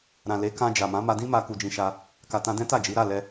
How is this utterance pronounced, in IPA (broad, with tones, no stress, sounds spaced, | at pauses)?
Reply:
ɾ ã˨ l e˨˦ k ã˧ d͡ʒ a˨ m ã˨˦ m a˧ d ĩ˦ m a˧ k u˧ d͡ʒ ĩ˧ ʃ a˧ | k a˨ t ã˧ d ɛ̃˦ t a˦˨ d͡ʒ i˨˦ ɾ a˦˨ l ɛ˧